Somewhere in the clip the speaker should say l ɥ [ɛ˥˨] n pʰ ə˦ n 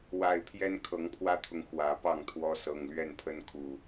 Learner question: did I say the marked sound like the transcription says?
yes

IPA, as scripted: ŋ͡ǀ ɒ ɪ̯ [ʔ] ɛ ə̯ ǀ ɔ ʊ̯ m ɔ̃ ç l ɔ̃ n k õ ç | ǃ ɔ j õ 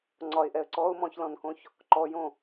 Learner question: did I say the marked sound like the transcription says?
yes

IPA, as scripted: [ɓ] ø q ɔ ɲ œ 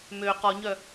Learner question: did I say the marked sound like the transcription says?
no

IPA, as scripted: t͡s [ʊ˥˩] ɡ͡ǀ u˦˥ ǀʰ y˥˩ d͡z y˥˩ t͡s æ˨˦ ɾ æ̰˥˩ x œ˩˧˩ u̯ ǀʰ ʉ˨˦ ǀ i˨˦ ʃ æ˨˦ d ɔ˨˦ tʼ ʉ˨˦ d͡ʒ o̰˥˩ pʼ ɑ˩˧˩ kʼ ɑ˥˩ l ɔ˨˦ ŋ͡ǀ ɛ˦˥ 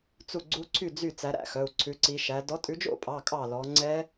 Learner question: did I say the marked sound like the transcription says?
no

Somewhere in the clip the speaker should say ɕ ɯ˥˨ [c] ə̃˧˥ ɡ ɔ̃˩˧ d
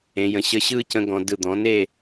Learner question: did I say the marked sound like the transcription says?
yes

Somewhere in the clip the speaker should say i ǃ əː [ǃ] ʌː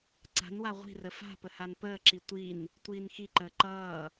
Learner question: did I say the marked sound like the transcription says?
yes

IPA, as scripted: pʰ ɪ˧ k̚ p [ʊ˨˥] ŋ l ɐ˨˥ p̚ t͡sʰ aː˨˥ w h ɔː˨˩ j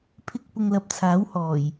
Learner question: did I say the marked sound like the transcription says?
no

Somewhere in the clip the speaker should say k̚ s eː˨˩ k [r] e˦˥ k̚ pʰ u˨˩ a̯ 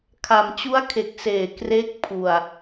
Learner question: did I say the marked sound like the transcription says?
yes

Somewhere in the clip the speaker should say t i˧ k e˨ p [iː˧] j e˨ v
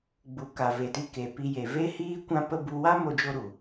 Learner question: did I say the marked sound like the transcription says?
no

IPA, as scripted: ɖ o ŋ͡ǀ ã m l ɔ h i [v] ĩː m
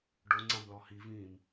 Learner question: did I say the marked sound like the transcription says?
yes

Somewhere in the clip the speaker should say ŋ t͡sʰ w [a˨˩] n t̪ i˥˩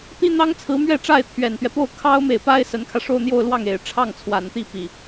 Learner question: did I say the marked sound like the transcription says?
yes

